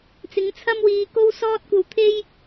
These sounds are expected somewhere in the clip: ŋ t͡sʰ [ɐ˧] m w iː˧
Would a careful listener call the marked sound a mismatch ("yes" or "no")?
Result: yes